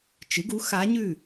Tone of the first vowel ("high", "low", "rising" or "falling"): rising